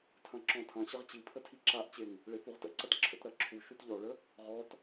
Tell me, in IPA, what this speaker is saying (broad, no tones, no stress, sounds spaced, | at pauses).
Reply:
tʰ ɐ̃ ǁ ɔ̃ tʰ ɐ̃ ɕ ə ʁ t͡ɕ i pʰ ə tʰ i ǁ a ʔ t͡ɕ e ŋ | ɭ e f u ʁ t ə̰ ǀ ɐ t ǁʰ ə̰ t ɾ ɐ ǁʰ u ʃ u t ʎ ɔ ɭ ə | ʁ ɔ t